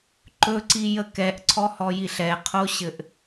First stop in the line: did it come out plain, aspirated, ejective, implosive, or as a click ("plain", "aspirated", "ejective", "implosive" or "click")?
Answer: click